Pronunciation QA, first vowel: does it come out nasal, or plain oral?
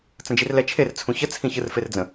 nasal